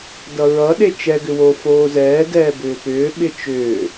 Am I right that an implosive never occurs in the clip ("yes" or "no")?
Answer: no